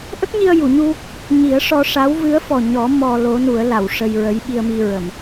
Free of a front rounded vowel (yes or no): yes